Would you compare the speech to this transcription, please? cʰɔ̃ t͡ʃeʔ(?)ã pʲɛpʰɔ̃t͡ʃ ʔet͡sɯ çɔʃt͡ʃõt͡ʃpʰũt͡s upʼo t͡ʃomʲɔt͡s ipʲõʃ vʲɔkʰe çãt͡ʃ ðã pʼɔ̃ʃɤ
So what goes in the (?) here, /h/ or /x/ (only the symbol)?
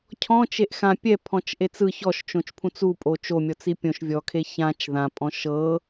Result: x